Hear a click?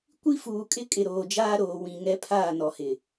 no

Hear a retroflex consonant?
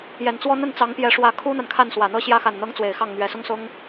yes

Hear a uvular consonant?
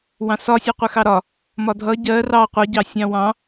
yes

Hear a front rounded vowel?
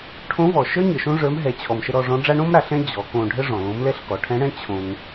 no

